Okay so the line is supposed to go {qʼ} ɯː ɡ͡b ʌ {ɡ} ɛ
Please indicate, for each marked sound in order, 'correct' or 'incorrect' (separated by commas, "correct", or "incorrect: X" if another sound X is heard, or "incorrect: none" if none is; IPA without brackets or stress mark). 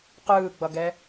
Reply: incorrect: q, correct